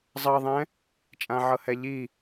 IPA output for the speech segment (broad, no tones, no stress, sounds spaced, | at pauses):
zˤ ʌ ðˤ ɛ̃ | t͡ʃʼ ã ʕ ɤ h ɛ ʎ i